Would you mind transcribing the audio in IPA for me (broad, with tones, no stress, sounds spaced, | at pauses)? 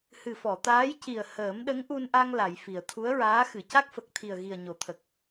h ɨ˨˩ f ɔ˨˩˨ t̪ aː˧˥ j c i˨˩ ə̯ h əː˨˩˦ m ɗ ə˧˥ ŋ ʔ u˧ n ʔ a˧ ŋ l a˨˩˨ j f i˨˩˨ ə̯ t̪ʰ u˧˥ ə̯ ɹ aː˧˥ x ɨ˨˩˨ c a˦˥ k̚ f ə˨˩ k̚ t̪ʰ i˨˩ ə̯ ɣ i˨˩ ə̯ ɲ o˨˩˨ t̪ʰ ə˨˩ k̚